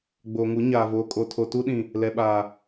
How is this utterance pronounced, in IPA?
ɡ͡b oː˨ ŋ u˨˦ ɲ aː˨ v oː˨ kʼ o˨ tʰ o˨ t u˦ ɗ ĩ˨ | l ɛ˨ ɓ aː˨

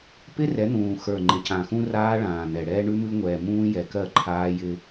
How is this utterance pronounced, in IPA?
p ɪ˦ r ɛ˨˦ n̪ ũː˨ x ə˞˨ ŋ͡ǃ ɪ˨ c ã˨ x ũ˦ r aː˦ ɭ ãː˨ n̪ ɛ˨ ɽ ɛː˦ ɳ ʉ˦ m ʉ˦ ŋʷ ɛː˨ m ũː˦ j ɛ˨ k ɜ˦˨ ǃʰ aː˦ j ɪ˦

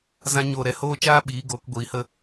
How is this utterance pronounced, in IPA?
z ã˦ ɲ oː˦˨ ɾ ɛ˧ h oː˦ t͡ʃ aː˦ ɓ iː˨˦ ɡ oː˨˦ k ɡʷ iː˨˦ h ə˦

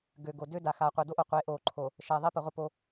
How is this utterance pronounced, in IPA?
ɡ ø˨ ɡ o˨ d ø˦ d a˨ x a˨ qʷ œ˨ d o˦ ʔ o˨ qʷ e˨˦ ʔ oː˨ ǃʰ o˨ | ʃ ɛ˨ ðˤ i˦ p ə˨ ʁʷ ə˦˨ p o˨˦

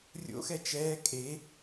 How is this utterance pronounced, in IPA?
rʲ o̰ x ɛ t͡ʃ ɛː kʼ e

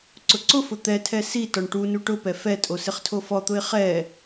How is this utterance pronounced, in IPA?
ǀ ʊ ǀ ʊ f ʊ t̪ ɛ tʰ ɛ s i t ɔ ɳ ʈ u n u ʈ ʊ p ɛ f ɛ tʼ o s ɪ χ tʰ o f ɔ t̪ ʊ ɪ̯ χ ɛ

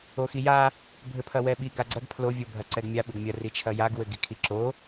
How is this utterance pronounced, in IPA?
o x i j a | bʱ ɘ pʰ ɐ w ɛ ɓ i ɡ a ɡ͡ǀ ɐ ɡ pʰ l o vʲ o bʱ ɐ ǀ ɛ ɡ mʲ a ɓ ɘ ɡ mʲ ɐ r i t͡ʃʰ ɐ j a ɡ w ɘ ɡ i kʰ i ǁ o

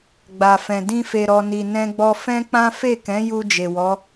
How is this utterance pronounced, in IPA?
ɡ͡b a˨ f ɛ̃˨ d ĩ˧ f e˨ ɾ ɔ˨ n i˨ n ɛ̃˧ ɡ͡b ɔ˧ f ɛ̃˦ k͡p ã˦ f e˦˨ k ɛ̃˨˦ j u˧ d͡ʒ e˨ w ɔ˨˦

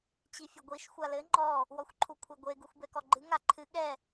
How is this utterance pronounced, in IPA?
t͡ɕ i fʲ ɘ ɡʷ i ʃ xʷ a l ɘ ŋ͡ǃ ɔ | w ɔ xʷ ǃʰ u kʷʰ e ɡʷ e ɡ u xʷ b ɛ k ɔ ɡ͡ǃ ɨ ŋ a ǃʰ ɨ ɠ ɛ

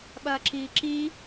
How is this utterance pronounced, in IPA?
ɓ ɐː ǁ iː ǁ iː

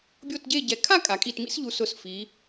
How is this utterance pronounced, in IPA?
bʲ o˥˧ t ɟ e˥˧ ɟ ɛ˧˩ kʰ a˥˧ kʼ a˩˧ kʼ i˧˩ t m ḭ˥ s ʎ u˧ s ʊ˧˩ s f i˩˧

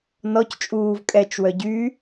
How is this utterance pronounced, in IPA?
n ɔ c t͡ʃʼ uː v kʼ ɛ t͡ʃ w œ ɟ y

